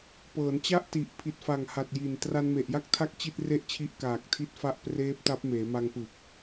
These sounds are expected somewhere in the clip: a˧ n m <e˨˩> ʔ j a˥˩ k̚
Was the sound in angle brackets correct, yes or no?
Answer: yes